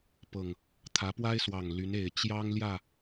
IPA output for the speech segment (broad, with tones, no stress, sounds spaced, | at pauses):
p ɤ˨˩ ŋ | t̪ʰ ä˨˦ p w a˦ ɪ̯ s w ɑ˨˩ ŋ l y˨˦ n e˨˩ ɪ̯ t͡ɕ j ɑ˦ ŋ l j ä˥˨